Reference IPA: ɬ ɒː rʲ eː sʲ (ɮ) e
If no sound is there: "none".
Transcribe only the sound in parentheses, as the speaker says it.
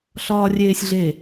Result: ɮ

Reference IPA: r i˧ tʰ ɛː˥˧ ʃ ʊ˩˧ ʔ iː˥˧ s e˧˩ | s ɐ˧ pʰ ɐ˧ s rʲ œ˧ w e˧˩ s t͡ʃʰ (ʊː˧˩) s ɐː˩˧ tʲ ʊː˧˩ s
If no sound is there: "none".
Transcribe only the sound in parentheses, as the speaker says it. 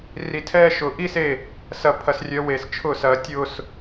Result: ʊː˧˩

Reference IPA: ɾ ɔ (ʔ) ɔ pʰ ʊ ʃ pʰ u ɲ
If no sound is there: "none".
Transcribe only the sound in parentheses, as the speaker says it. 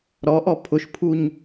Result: ʔ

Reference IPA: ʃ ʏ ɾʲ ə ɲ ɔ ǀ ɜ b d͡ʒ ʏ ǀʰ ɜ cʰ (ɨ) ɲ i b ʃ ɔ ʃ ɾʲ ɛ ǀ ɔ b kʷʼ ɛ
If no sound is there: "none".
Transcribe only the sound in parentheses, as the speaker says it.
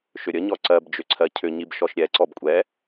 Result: ʏ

